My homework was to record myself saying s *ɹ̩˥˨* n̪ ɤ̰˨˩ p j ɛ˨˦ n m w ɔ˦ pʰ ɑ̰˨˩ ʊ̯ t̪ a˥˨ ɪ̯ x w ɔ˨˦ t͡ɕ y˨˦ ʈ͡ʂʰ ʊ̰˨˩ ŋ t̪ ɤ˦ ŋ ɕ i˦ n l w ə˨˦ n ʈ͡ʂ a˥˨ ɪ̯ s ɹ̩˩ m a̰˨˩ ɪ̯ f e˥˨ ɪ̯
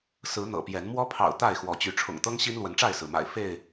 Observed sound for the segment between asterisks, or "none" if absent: ɹ̩˨˦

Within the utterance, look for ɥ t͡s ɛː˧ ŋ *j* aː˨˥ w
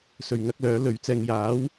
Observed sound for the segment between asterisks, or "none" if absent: j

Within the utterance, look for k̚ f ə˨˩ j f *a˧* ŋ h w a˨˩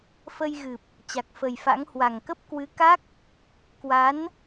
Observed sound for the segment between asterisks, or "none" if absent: a̰˧˥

